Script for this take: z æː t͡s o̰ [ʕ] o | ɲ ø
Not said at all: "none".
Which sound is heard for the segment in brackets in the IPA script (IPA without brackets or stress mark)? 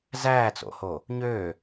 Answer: h